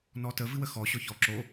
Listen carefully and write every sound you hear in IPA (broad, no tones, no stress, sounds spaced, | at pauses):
n ɔ t ə v ɨ w ə x ɔ ɕ ɔ ç ɔ ǁ o